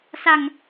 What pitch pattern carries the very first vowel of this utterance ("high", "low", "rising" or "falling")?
low